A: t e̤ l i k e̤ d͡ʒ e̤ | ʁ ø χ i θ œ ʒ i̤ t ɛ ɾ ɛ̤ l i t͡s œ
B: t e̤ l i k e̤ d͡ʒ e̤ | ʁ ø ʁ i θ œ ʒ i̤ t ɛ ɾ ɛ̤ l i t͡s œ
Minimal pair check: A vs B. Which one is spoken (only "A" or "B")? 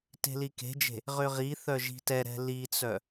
B